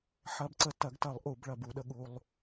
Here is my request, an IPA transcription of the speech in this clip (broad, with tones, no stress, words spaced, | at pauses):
ħɐ˧bǀə˧ tɐ˨˩˦ɡtɐ˨˩˦lˠ ʔu˨˩˦bɭɐ˨˩˦bu˨˩˦ɗə˧ ɠu˧lˠ